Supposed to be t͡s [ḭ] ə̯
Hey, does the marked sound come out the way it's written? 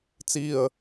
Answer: no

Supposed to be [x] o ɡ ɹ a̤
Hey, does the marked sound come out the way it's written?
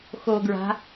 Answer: yes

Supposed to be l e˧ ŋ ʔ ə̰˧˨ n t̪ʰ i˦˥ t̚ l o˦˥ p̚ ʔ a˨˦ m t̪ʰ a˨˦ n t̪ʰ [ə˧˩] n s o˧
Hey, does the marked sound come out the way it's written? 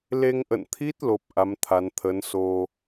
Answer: no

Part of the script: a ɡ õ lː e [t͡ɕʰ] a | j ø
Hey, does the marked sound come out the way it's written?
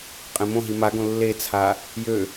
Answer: no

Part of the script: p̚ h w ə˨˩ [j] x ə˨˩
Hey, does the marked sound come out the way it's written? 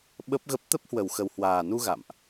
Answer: no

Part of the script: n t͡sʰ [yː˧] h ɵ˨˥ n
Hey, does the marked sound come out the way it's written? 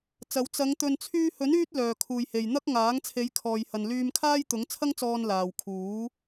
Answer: yes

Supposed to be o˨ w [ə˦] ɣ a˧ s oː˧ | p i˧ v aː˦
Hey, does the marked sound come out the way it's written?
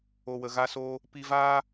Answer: no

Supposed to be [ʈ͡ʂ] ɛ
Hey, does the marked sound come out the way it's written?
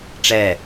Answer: yes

